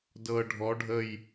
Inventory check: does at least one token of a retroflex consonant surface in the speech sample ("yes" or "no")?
yes